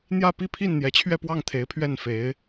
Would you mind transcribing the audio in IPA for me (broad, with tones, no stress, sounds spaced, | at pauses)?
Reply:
n̪ j ä˥˧ p i˥˧ pʰ i˥˩ n n̪ j ɛ˧˥ t͡ɕʰ ɥ ɛ˥˧ p w ɑ˥˩ ŋ t̪ʰ e˧˥ ɪ̯ pʰ ɥ ɛ˥˩ n f e˧˥ ɪ̯